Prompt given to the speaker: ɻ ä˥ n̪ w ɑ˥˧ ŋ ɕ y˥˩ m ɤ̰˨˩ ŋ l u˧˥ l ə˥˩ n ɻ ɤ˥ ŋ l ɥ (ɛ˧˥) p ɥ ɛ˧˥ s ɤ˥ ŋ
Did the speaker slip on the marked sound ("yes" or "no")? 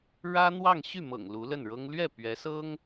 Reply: yes